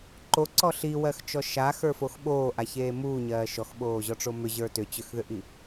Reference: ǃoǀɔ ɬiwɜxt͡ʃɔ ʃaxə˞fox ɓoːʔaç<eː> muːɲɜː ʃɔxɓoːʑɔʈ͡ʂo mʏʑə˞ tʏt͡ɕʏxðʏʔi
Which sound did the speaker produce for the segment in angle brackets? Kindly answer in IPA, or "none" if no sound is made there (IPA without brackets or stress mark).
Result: eː